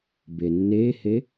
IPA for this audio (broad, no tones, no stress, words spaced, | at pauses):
benːehe